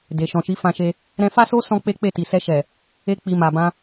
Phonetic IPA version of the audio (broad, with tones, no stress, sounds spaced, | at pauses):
d e˨ ʃ ɔ̃˨ ʃ i˨˦ f ã˧ ʃ e˧ | ɾ ɛ̃˧ f a˦ s o˦ s ɔ̃˦ k͡p e˦ k͡p e˦˨ t i˨ s ɛ˧ ʃ ɛ˨ | e˦ k͡p i˧ m a˨ b ã˧